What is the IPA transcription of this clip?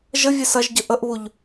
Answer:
ʒ ə vʲ e s ɐ ʒ ɟ ə ʔ ə ʔ β u ʎ

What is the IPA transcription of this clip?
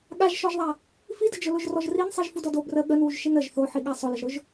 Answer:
ɠ a ʒ ʃ ɔ ʒ ðˤ a | f i d ə d͡ʒ ʊ l ʊ ʒ r ɔ ʒ r i n sˤ i ʒ f u d ɔ d o b r ə ɠ ə n w u ʒ ʃ i n ə ʒ θ o ħ i ɠ a sˤ ʊ l ə ʒ ɾ ʊ ʒ

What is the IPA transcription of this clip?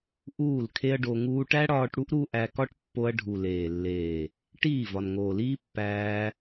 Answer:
ʔ uː˦˨ l kʰ e˦ ɐ̯ ɖ o˧ ŋ uː˧ ʈ æ˦ ɽ ɒː˧ ʈ ɽ u˦ ʔ ɾ u˦ ʔ æ˧ k ɒ˦ ʈ pː o˧ ɐ̯ ɖʱ u˨ l eː˨ lː eː˨ | ʈ iː˦˨ v ɒ˨ n ŋ oː˨ l iː˦ pː æː˧

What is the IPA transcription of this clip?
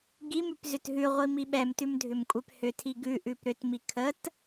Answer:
ɡ i m ʉ p z ʏ t ɦ ʉ ʁʷ i m i ɓ ɛ m t ʉ m dʱ ʏ m kʷʼ ɛ p h ʏ tʰ i ɡ ʉ ʔ ʉ p ɾ ʏ t m i kʰ ə t

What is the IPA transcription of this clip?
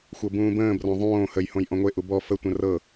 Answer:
xʷ ɤ b ũː b ə̃ː b r ɔ̃ ðˤ õː h ə j h õ j ʔ ɔ̃ ŋʷ e ʔ u b ɔ f ə tʷ ə̃ r ɤ

